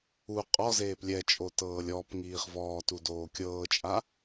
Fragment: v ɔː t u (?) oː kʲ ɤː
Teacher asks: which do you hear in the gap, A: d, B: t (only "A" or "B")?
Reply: A